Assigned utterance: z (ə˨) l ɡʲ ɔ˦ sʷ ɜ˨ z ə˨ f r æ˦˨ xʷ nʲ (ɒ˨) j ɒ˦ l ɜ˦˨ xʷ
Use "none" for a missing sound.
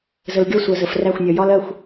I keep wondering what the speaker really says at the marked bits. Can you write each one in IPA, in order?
ə˨, ɒ˨

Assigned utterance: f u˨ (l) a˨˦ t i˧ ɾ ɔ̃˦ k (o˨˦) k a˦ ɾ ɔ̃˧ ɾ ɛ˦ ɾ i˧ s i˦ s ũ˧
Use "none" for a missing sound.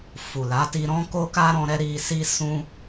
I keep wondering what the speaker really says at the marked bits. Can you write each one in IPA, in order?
l, o˦

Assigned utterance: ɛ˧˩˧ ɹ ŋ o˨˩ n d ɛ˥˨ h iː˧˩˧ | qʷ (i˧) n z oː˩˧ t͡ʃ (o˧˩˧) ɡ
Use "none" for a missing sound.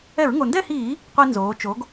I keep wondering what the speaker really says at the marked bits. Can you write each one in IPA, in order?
i˧, o˩˧

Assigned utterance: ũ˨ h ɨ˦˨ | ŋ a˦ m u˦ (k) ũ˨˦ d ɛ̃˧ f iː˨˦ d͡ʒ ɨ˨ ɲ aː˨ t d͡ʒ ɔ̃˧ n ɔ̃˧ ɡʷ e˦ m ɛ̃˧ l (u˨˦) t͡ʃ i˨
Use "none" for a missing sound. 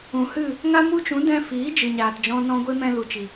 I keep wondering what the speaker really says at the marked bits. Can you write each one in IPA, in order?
t͡ʃ, u˨

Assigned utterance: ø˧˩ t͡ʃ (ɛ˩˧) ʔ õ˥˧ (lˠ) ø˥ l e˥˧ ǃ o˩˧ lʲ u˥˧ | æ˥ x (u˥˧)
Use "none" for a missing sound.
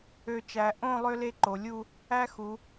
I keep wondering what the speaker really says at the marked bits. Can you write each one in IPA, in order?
æ˩˧, lˠ, u˩˧

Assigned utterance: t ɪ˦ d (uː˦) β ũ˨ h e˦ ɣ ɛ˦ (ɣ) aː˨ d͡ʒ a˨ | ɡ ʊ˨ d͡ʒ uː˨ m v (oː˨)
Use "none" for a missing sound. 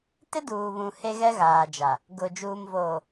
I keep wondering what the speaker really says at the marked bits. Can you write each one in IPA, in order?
uː˨, ɣ, oː˨

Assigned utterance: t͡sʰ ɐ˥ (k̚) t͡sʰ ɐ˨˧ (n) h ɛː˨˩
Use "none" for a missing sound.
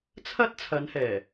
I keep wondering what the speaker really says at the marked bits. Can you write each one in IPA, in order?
t̚, n

